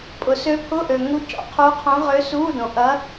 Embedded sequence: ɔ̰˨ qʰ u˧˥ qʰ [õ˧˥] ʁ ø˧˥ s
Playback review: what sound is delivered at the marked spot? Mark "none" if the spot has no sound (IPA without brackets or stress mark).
õ˧˥